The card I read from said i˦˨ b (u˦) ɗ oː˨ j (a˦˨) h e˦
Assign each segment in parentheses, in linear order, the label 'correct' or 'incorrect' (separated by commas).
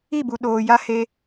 incorrect, incorrect